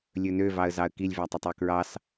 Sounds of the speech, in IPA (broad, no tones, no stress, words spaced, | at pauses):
lʲɵnøvɑə̯zɑə̯ kilʲvætˤɛtˤ økɹɑs